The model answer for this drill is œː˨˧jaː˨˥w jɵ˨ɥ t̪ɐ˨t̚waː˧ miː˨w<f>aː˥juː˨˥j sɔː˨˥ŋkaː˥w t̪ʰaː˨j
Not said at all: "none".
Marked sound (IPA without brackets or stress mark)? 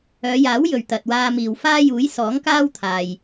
f